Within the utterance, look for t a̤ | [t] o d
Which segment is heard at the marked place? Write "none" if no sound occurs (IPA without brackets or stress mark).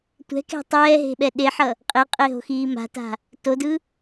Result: t